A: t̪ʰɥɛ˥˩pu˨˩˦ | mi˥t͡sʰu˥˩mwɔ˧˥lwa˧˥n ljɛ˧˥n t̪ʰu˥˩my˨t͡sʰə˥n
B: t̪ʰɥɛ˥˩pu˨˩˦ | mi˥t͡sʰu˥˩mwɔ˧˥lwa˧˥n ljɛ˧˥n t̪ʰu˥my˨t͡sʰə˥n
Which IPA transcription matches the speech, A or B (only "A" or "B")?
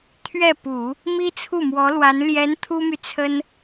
B